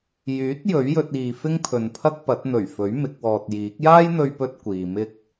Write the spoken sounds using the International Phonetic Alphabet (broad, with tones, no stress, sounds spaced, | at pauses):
j yː˨˥ t̚ j ɵ˨˥ ɥ j ɵ˧ t̚ iː˨ f ɪ˥ ŋ pʰ ɵ˨ n pʰ ɐ˥ k̚ p ɐ˨˥ t̚ n̪ ɵ˨˩ ɥ f ɵ˨˥ ɥ m ɪ˨˥ k̚ w ɔː˧ t̚ j iː˨˥ k̚ j aː˥ j n̪ ɵ˧ ɥ p ɵ˧ t̚ kʷ iː˨ m ɪ˥ k̚